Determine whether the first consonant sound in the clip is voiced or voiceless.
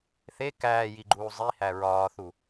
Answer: voiceless